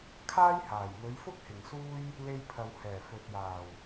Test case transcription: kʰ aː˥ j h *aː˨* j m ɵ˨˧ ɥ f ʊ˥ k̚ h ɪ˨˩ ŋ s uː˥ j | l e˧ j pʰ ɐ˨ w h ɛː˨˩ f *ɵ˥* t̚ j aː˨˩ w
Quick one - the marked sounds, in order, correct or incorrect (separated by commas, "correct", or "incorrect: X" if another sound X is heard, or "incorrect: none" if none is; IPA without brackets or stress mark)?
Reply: incorrect: aː˨˩, incorrect: ɵ˨